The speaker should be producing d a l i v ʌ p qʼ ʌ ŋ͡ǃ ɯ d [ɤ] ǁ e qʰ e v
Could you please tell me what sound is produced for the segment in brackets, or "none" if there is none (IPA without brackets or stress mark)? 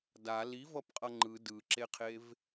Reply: ɯ